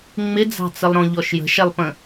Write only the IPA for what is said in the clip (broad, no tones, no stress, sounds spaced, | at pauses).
ŋ͡m ɪ d͡z ɑ̤ t͡s ə lˠ ɾ ɔ̃ ʎ ɔ ʃ j ə̤ ʃ ɛ lˠ p ə̃